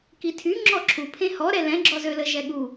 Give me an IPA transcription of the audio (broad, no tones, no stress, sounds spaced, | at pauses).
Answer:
k i tʰ y ŋ͡ǁ ɔ ǁʰ u pʰ ẽ h ɔ ɾ ɛ l ɛ̃ ɡ͡ǁ ɔ z ø l ə ʒ ɛ ɠ u